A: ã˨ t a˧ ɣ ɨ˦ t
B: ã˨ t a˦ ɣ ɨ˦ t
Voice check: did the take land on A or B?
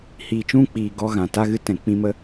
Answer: B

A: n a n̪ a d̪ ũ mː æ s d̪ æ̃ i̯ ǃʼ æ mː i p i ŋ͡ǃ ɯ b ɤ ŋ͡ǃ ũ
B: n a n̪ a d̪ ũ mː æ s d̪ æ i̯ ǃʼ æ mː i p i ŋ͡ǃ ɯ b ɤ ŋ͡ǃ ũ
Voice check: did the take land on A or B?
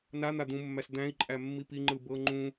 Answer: A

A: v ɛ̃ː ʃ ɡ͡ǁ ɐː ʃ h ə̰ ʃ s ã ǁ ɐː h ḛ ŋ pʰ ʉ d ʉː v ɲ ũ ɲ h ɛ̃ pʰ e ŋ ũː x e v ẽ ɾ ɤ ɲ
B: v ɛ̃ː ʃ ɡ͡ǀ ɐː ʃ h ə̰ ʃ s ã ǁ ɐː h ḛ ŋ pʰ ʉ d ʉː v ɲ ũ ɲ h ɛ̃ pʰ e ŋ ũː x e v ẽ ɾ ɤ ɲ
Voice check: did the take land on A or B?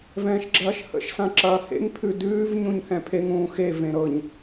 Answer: A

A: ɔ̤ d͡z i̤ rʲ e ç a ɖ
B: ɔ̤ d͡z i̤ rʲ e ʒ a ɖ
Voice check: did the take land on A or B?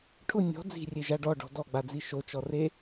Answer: B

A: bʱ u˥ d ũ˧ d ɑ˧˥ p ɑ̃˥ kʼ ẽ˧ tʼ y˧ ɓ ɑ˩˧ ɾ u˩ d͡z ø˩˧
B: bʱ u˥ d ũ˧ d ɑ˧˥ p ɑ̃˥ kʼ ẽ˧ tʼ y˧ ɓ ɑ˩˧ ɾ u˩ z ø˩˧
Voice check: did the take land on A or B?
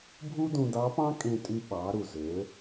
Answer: B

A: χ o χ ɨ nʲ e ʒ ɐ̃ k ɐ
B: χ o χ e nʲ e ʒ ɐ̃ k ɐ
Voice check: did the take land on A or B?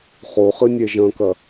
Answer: A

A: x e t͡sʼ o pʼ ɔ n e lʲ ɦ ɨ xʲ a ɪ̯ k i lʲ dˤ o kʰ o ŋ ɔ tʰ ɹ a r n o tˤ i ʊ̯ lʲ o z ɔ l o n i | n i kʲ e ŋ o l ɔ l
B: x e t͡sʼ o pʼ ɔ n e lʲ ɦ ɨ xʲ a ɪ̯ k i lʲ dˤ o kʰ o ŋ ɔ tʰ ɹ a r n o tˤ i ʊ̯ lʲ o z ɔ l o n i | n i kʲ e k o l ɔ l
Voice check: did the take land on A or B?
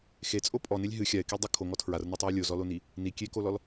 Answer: B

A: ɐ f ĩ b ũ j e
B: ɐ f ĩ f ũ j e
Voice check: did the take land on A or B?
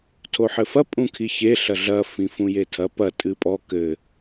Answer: B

